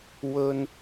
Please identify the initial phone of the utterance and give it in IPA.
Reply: w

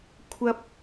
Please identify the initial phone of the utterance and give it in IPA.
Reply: kʷʰ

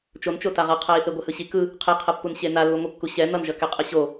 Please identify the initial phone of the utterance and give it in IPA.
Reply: t͡ʃ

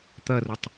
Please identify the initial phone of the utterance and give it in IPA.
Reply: t̪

